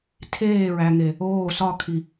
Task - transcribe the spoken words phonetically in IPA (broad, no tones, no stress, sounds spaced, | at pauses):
tʰ eː ɹ æ ŋ e | oː s ɒ kʰ i